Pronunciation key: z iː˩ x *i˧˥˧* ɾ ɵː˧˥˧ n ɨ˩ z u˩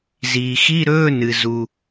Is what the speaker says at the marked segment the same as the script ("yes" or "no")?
yes